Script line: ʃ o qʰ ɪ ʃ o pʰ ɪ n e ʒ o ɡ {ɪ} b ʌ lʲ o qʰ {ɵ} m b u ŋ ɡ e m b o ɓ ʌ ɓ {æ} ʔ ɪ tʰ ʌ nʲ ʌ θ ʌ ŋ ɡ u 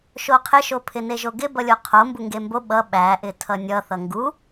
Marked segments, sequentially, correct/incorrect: correct, incorrect, correct

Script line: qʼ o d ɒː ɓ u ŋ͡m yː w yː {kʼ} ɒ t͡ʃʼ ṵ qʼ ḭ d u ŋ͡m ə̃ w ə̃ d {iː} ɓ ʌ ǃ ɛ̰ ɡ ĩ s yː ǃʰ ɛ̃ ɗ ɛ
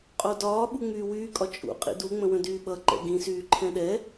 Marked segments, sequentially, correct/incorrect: correct, incorrect

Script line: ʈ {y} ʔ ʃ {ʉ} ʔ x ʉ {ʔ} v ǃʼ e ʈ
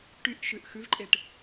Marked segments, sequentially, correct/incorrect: correct, correct, incorrect

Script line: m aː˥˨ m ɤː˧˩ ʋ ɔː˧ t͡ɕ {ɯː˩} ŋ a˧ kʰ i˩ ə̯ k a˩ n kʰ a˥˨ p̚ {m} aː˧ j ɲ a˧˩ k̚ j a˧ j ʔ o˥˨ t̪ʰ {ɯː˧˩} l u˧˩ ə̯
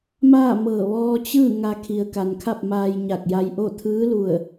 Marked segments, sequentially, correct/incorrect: incorrect, correct, incorrect

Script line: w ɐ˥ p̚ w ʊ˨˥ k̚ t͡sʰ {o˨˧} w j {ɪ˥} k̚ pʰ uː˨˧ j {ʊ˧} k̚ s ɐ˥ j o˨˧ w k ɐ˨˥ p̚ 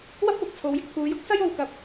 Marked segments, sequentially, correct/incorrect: correct, correct, incorrect

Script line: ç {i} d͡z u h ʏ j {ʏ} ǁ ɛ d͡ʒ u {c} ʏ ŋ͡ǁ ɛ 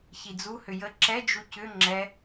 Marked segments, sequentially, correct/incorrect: correct, incorrect, correct

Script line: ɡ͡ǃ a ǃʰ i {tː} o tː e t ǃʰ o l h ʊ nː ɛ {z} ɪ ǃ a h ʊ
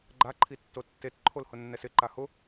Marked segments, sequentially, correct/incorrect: correct, incorrect

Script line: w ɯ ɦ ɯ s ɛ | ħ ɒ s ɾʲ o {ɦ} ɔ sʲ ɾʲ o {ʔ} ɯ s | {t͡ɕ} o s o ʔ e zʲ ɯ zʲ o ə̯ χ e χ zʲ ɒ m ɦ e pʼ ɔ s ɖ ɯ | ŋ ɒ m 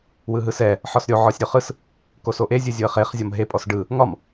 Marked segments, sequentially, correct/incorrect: incorrect, incorrect, incorrect

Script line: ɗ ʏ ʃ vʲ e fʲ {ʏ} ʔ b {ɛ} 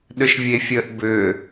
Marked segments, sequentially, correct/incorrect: incorrect, incorrect

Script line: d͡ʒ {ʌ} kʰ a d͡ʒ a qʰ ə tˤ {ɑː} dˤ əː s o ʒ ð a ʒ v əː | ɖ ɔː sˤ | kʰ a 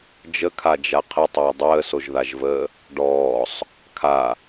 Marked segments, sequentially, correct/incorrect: incorrect, incorrect

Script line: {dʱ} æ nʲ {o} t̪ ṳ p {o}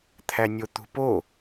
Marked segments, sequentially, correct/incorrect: incorrect, correct, correct

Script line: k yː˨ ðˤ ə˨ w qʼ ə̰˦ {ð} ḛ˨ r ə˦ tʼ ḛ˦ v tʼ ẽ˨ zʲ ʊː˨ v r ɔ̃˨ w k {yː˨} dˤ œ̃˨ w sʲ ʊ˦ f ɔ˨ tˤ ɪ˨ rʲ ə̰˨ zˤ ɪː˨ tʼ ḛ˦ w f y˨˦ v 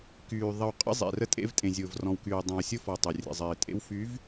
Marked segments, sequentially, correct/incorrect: incorrect, correct

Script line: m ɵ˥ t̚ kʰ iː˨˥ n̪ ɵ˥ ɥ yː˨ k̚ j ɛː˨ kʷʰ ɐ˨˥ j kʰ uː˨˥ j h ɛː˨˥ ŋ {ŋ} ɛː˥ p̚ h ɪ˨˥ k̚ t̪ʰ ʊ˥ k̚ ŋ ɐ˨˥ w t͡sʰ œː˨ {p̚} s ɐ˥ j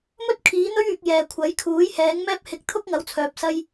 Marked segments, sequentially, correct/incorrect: incorrect, correct

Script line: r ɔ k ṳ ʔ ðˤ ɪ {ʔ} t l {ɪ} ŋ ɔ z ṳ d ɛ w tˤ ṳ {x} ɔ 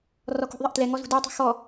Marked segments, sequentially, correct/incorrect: correct, incorrect, correct

